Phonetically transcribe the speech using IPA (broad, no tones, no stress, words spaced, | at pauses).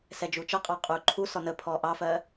sɛd͡ʒut͡ʃʌqʼɑ qʼuːǃʰusɔ nə pʰɔːʔɑfɜː